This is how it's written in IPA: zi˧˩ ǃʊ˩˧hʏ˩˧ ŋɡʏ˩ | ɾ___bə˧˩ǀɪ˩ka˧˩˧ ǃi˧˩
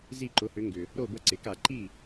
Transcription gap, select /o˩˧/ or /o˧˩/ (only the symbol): o˧˩